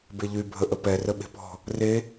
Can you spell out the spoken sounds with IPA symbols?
b e ʎ y bʱ ə ʔ ə p ɛ r ə ɓ e̤ p ɔ̤ | r e

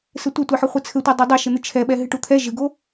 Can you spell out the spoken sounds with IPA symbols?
s ɘ tʷ e tʷ e ħ ɘ χʷ ɘ t͡sʰ ɘ tʷ ɛ dˤ o dˤ ɛ ʃ ɘ n̪ ɨ t͡ʃʰ ɛ ɓ ɛ ɦ ɨ ʈ u t̪ʰ ɛ ʒ ɨ ɡ o

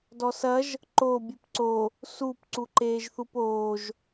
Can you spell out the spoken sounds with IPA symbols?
d ɔ s ɐ ʒ | ǃ o bʲ ɨ p ǀ o | s u p ǀ u ǃ eː ʒ θ u p oː ʒ

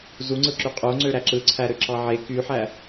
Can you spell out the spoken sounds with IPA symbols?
z u ŋ͡ǀ ɯ ǁ y qʼ o ŋ͡ǀ ø ɾ æ ǁ ɯ ǀʰ æ ɾ ø ǁ ɑ ʕ e k y ħ æ

